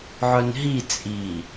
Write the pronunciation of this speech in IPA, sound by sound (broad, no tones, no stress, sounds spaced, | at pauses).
ʕ œ n ɦ i t͡sʼ i